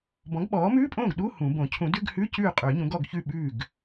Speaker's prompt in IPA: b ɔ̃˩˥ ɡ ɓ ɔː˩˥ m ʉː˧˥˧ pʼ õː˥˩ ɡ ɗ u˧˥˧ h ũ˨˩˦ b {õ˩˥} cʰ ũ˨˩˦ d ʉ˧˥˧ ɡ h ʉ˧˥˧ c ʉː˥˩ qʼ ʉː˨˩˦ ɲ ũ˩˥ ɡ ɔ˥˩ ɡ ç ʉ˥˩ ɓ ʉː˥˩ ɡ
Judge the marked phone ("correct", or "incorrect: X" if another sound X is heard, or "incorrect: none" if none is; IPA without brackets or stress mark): incorrect: õ˨˩˦